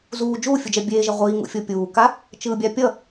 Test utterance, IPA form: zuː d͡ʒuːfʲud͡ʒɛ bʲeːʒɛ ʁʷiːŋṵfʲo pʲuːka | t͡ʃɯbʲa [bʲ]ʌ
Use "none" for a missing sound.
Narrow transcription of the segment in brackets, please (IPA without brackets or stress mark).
pʲ